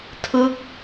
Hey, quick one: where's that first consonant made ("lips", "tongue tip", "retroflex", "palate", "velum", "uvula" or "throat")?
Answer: tongue tip